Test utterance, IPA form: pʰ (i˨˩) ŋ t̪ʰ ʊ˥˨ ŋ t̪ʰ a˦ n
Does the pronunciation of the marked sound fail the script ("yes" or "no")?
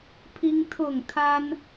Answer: yes